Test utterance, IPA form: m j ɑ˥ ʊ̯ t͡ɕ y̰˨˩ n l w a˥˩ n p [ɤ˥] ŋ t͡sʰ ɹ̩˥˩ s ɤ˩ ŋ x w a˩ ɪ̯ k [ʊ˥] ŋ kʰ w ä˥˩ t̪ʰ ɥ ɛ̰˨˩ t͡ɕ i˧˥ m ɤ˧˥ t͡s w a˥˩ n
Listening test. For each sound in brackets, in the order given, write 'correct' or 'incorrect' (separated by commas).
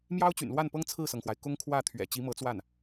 correct, correct